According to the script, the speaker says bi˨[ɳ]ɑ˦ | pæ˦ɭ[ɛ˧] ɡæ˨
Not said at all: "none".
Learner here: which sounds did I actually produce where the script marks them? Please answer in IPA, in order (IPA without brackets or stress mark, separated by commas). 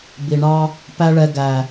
ɳ, ɛ˧